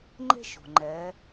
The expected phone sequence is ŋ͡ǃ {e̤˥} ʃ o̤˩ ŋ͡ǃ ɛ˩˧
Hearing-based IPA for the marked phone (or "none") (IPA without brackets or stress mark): e̤˥